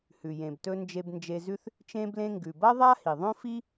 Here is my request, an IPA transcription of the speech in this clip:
h ʉ˩ j ẽ˩ b t ɵ˧ n d͡ʒ e˧ b n d͡ʒ e˧ z ʉ˥ θ | t͡ʃ ẽ˧ b l ẽ˧ ŋ ɡ ʉ˩ b ɐ˥ ðˤ a˥ h i˩ ðˤ õ˥ f i˥

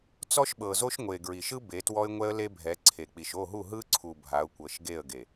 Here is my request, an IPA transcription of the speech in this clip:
t͡s ɔ˦ ʃ ɓ ɤ˨ z o˦ ʃ ŋʷ e˨ ɡ ɹ i˨ ʃ ɯ˦ b e˨˦ t w ɔ˦ ɪ̯ ŋʷ ɛ˦ ə̯ l e˦ bʱ ɛ˨˦ ǀʰ e˨ k͡p i˨ ʃ o˦˨ ɦ u˦˨ ɦ ɯ˦ ǀʰ u˨ bʱ a˨˦ ʊ̯ kʷ ɤ˨ ʃ ɡ e˦˨ ə̯ ɡ e˨

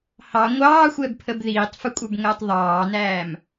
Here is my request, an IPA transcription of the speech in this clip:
h ɑ ŋʷ ɑː xʷ ɛ b pʰ ə b ð iː tˤ f ə kʷʼ ə˞ b ŋ əː tˤ ðˤ ɑː n æː m

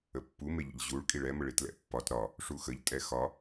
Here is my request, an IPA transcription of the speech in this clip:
ə pː u m e ʎ ə̰ ʎ ʑ u ɭ kʼ i ɭ ɛ m ə ɭ i t l ɛ̰ pː ɒ t ɾ ɒ | ʂ u x ə ʎ tʼ ɛ x ɒ

